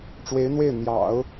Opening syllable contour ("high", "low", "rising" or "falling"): rising